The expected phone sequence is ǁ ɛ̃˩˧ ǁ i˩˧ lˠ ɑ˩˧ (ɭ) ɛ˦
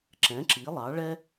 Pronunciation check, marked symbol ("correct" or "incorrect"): correct